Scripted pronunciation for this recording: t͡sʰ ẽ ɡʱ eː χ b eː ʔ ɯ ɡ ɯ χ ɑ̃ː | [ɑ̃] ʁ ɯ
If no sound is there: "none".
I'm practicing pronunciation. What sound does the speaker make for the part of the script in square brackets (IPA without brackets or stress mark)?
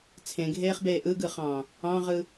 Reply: ɑ̃